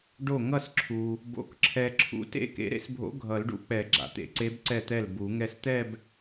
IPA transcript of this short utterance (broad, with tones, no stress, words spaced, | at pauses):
ɖo˥˩ ŋʌ˥˩sǁʰu˩ | bo̰˧˥kǁʰɛ˧ ǁʰṵ˧˥ tḛ˥˧kḛ˧˥ɾḛ˥˧sbʱo̰˧˥ ɡʱʌ˨˩˦lɖṵ˧˥k͡pɛ˨˩˦ ɡ͡ǁa̰˩t̪ḛ˨˩˦ǀe˧˥b ǀɛ˥˩t̪ɛ˥˩lbu˨˩˦ ŋɛ˧st̪ɛ˥˧b